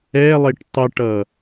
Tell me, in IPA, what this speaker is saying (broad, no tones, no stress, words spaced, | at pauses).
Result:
ɛlˠeʈ tˤəʈʌ